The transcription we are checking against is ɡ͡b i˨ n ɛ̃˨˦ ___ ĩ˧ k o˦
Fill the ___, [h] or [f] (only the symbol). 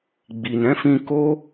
f